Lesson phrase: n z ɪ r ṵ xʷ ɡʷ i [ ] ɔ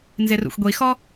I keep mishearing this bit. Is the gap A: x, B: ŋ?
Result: A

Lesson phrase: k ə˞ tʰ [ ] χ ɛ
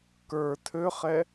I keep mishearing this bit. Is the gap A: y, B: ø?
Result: B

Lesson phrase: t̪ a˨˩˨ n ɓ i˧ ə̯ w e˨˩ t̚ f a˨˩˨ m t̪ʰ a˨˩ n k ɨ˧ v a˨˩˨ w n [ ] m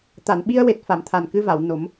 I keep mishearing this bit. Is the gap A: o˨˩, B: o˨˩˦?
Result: B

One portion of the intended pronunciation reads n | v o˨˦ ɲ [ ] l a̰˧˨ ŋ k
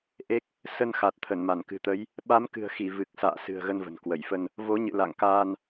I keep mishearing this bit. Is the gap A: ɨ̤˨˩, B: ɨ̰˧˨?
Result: B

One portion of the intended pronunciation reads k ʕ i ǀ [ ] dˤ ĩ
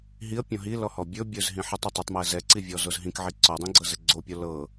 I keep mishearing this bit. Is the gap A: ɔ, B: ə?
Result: A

